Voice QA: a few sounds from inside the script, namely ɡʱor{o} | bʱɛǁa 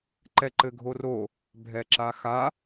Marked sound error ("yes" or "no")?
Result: no